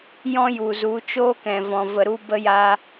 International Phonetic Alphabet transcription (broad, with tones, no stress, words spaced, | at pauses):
jɔ̃˦ju˨ zu˨˦t͡ʃoː˦ kɛ̃˨vɔ̃˨ və˨ɾu˧ bə˧ja˧